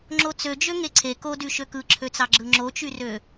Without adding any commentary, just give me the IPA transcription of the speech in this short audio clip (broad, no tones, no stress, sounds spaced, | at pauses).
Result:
ŋ͡ǁ o t͡s ø d͡ʒ ø ŋ e ǀʰ e k o d y ʃ ø k ɯ ǁʰ ø t͡s ɑ ɡ͡ǁ ɯ ŋ͡ǁ o t͡ʃ y r ø